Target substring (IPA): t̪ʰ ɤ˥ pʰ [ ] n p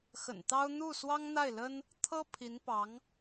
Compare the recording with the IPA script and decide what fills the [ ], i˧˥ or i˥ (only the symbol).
i˧˥